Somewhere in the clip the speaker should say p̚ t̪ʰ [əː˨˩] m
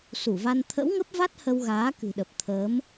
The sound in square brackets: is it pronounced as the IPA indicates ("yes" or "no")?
no